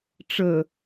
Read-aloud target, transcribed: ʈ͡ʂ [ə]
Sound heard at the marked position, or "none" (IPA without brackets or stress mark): ə